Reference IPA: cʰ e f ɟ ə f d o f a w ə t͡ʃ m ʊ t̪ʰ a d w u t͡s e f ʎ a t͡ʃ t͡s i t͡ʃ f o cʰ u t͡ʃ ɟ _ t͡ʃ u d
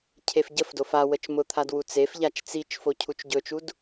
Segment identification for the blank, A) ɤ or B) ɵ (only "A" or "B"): B